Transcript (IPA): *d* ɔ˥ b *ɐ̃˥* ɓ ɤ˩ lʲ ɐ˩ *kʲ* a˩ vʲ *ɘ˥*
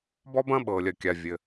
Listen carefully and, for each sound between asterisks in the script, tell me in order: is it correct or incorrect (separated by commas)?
incorrect, correct, correct, incorrect